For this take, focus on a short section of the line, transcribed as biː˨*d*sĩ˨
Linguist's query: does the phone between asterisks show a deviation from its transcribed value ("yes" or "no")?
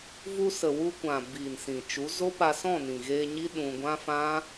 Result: yes